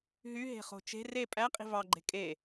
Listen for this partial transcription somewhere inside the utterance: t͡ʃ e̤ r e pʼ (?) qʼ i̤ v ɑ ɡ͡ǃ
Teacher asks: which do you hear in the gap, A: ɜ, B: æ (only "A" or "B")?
B